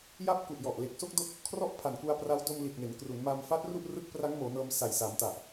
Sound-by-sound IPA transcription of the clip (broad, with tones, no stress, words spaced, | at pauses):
ja˦˥p̚ku˨˩ʔjɔ˨˩ʔ le˨˩k̚so˥˩k̚do˦˥k̚ | kʰrɔ˥˩ʔpʰa˨˩nku˧a̯ pra˦˥w do˧mli˨˩t̚ne˩˦n kru˩˦nma˧mfa˦˥t̚ru˥˩ʔ rɯ˦˥k̚pra˦˥ŋmoː˩˦nɤː˧m sa˨˩jsa˩˦mta˨˩ʔ